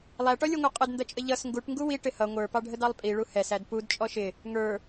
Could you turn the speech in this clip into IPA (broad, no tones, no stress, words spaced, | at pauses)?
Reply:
lˠæʈɔlʲə˞ŋʷæ qʼədndʌt͡ʃʼə ʎʌs ŋɡuʈ ŋɡuwi ʈɪhʌ ŋʷə˞pɑɖʱə dɑlˠpʼiɭu hɛsæd pud t͡ʃʼɔʃɪ | ŋə˞